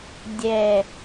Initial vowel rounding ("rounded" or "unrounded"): unrounded